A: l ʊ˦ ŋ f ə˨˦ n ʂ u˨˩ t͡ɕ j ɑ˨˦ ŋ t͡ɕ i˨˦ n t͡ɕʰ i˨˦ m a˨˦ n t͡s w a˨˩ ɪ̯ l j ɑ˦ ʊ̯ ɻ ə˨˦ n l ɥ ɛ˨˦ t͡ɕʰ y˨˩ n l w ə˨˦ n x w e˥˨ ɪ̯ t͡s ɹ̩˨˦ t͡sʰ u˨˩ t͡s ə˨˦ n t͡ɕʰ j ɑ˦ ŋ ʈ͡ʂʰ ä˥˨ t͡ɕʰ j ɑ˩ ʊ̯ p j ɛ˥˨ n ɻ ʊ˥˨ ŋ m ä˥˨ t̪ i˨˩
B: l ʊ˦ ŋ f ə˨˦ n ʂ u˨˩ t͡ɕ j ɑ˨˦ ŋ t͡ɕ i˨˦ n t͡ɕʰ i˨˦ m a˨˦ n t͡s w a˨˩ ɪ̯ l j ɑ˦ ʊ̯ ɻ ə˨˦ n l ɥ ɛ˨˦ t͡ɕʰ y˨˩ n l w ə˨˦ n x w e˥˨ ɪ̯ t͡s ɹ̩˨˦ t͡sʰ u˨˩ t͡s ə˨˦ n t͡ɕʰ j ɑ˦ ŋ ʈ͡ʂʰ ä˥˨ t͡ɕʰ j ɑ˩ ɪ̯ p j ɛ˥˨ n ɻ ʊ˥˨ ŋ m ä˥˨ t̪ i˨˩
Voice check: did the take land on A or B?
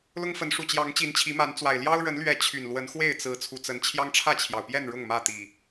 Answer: A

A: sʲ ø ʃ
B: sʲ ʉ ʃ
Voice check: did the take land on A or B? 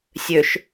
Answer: A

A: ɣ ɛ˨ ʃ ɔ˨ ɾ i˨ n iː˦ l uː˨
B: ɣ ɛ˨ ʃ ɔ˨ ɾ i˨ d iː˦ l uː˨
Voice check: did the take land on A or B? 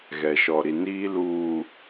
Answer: A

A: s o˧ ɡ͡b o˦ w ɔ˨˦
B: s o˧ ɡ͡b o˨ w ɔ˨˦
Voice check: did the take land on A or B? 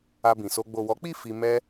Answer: B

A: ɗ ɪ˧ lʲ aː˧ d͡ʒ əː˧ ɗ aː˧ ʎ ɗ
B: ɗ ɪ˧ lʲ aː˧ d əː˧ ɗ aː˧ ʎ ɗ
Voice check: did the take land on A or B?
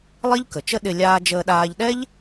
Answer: A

